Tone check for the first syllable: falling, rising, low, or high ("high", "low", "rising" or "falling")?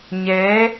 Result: rising